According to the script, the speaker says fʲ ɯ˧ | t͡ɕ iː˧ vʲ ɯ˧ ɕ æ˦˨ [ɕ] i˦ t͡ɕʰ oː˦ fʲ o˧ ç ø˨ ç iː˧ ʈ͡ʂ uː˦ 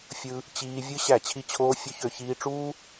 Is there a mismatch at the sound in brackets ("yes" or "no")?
yes